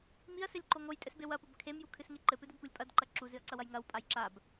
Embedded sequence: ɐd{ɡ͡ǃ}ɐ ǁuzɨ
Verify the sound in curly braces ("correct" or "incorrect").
incorrect